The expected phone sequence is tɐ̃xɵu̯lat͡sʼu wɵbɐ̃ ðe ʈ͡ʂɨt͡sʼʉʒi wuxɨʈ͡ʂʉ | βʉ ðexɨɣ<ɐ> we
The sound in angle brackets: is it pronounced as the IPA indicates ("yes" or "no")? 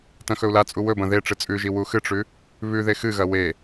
yes